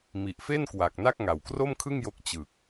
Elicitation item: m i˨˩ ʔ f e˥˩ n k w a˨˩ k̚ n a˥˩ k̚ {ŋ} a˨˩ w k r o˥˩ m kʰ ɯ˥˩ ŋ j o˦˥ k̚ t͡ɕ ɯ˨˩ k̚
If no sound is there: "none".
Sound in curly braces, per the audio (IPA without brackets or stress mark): ŋ